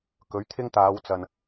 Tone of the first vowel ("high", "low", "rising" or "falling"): rising